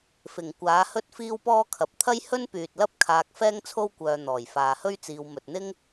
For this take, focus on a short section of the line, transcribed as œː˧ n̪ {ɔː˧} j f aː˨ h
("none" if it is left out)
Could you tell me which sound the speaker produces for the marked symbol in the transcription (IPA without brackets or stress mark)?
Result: ɔː˨˩